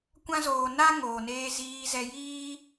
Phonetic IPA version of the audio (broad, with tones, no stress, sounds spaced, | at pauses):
kʷ ã˦ z oː˧ n a˦ ŋ oː˨ n eː˧ z iː˧ z ɛ˧ j iː˦